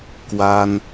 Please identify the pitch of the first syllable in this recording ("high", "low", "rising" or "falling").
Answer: high